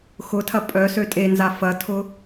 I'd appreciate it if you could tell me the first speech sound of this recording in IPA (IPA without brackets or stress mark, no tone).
x